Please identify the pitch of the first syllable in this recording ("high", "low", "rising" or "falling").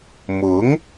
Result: rising